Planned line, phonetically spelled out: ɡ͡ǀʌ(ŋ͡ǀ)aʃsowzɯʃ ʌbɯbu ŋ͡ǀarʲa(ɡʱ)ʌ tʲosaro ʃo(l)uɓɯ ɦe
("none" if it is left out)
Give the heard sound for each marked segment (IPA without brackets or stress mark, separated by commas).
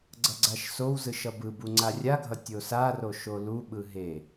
ɡ͡ǀ, ɡʱ, l